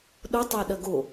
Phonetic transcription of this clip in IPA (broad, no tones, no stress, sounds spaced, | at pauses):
ɗ o tˤ a ɗ ɐ ɡ o